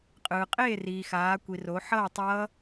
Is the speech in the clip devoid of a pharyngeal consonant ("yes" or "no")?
no